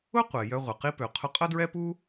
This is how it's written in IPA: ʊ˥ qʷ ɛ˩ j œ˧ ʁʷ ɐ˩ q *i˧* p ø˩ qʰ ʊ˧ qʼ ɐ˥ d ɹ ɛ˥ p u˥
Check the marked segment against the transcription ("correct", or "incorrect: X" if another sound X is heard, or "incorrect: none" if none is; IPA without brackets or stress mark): correct